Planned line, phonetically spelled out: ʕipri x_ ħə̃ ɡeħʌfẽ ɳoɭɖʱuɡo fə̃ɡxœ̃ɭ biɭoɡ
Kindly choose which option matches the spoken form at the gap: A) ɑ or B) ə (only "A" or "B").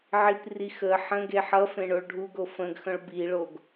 B